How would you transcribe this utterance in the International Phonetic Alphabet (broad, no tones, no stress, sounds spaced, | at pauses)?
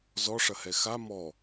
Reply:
z ɔ ʂ ɐ h ɛ x a m ɔ